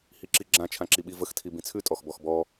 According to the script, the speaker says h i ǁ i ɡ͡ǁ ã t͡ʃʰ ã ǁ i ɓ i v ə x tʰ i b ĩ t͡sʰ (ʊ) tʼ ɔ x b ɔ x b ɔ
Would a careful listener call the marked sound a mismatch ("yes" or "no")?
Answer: yes